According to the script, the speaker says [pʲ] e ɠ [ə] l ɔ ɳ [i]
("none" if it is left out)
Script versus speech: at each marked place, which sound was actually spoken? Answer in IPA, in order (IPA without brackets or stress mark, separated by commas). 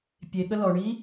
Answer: pʲ, ə, i